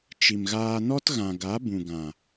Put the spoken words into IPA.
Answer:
t͡ʃ i˨ m ɣ aː˧ n ɔ˦ t ɣ ã˨ ɡ a˨˦ b ũ˨ ɡ ã˨

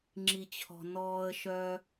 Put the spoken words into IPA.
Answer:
ŋ͡ǁ i˨ t͡ɕʰ ɔ̤˨ n ɔː˧ ə̯ ʃ œ˧

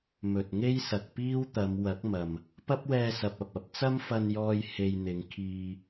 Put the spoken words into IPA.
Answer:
m ɵ˨ t̚ ŋ e˥ j s ɐ˨ k̚ p iː˥ w t̪ ɐ˨˧ m w ɐ˨˥ k̚ m ɐ˨ m | p ɐ˥ p̚ w ɛː˧ s ɐ˨ p̚ ɐ˨ p̚ ɐ˧ p̚ t͡s ɐ˥ m f ɐ˧ n j ɔː˧ j h e˧ j n̪ ɪ˨˧ ŋ kʰ iː˧

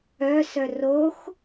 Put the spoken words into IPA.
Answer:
œ s œ r o x

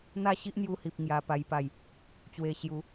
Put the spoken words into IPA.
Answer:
n̪ a˥˧ ɕ i˦ ʔ n̪ j u˧ h i˨ p̚ ŋ j a˧ p a˧ j p a˥˧ j | t͡ɕ w e˧ ɕ j u˨˦

